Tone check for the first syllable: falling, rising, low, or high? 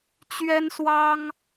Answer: high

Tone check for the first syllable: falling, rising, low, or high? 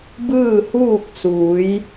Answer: falling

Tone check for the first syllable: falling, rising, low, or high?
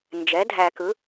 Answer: rising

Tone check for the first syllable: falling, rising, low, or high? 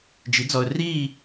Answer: rising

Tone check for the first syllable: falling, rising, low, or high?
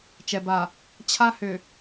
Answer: low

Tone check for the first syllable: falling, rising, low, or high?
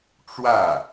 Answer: falling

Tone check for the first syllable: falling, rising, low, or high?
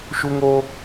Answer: high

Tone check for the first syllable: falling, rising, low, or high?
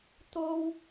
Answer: high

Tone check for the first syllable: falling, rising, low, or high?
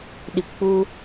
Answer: low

